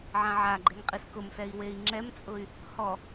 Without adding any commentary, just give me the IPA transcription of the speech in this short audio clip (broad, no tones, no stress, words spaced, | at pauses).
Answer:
ʕãʕaɡ͡ǃeŋ qʼiskʊmsɛi̯ wei̯ŋ͡ǁɛmt͡sʼʊy̯ | hɔ